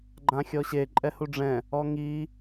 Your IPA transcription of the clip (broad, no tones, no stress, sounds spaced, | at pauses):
ɡ͡ǃ ã xʲ ɔ ɕ e ǃʼ ɛ h u ɖ͡ʐ ɛ̃ | ɔ ŋ i